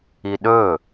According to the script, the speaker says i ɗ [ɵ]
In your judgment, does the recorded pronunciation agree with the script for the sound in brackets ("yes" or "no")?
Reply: yes